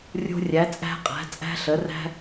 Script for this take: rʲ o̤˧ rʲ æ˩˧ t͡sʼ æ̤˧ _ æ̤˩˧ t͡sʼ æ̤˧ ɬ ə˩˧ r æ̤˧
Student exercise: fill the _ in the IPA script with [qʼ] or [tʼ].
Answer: qʼ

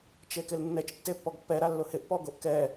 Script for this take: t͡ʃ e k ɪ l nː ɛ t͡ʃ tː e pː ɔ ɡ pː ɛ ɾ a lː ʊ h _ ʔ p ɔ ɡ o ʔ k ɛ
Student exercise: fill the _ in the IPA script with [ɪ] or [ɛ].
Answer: ɪ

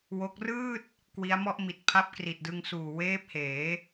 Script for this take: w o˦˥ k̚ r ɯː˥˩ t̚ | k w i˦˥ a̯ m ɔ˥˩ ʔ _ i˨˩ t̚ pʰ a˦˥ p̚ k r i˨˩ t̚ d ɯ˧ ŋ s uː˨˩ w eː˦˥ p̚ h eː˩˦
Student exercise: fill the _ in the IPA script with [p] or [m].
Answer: m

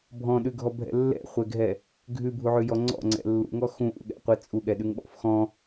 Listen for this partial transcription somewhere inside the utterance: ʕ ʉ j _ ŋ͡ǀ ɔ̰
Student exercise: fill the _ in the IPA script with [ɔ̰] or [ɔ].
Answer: ɔ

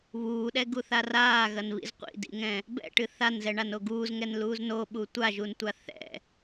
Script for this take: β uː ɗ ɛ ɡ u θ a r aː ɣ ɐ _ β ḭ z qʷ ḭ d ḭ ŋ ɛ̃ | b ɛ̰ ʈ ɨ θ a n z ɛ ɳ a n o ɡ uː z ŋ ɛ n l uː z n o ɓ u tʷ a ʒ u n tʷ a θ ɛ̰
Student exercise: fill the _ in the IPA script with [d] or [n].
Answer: n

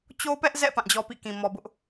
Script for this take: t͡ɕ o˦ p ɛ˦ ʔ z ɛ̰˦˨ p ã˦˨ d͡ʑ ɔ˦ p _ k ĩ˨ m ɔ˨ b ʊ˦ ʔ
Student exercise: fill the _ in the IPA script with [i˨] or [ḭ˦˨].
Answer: ḭ˦˨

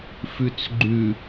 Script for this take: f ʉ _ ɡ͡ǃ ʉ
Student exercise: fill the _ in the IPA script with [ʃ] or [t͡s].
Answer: t͡s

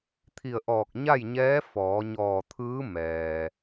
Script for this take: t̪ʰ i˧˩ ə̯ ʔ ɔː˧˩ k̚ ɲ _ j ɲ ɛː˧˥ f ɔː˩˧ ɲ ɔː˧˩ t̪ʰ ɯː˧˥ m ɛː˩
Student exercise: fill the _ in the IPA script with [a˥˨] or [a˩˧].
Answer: a˥˨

